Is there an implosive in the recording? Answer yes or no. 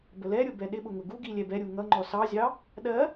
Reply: yes